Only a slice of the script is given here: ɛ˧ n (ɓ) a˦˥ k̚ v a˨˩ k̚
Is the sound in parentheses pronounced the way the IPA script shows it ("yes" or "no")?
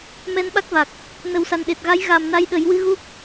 yes